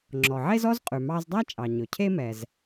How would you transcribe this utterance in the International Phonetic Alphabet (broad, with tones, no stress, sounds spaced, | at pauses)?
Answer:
ŋ͡ǁ ɔ˩ ʕ e˥ z ɔ˥ z qʼ ʉ˩ m ɑ˧ z dˤ æ˥ t͡ʃʼ ɑ˩ ɲ ɵ˩ cʰ e˥ m ɛ˩ z